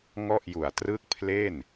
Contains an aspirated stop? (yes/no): yes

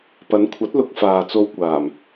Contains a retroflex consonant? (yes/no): no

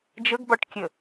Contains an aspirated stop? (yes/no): no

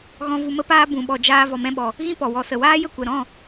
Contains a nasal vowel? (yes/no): yes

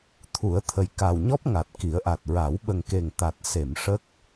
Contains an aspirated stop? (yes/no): yes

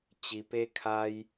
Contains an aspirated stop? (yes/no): yes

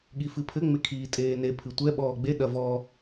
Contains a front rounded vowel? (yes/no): no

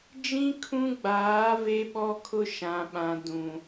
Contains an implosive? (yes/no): yes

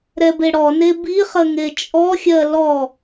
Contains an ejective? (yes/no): yes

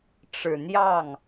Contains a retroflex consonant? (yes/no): yes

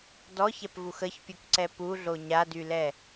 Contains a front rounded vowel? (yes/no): yes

